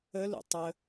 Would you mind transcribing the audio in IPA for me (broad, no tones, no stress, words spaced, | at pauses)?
ə lṵtˤə